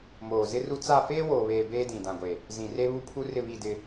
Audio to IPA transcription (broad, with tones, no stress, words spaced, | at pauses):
moː˨zɪ˦ru˦ t͡sa˦˨ feː˦woː˨βeː˨ beː˦dĩ˨dã˨ɡʷe˨ | zĩ˨ re˦βu˦ pʰu˦rɪ˦˨βi˦˨dɪ˦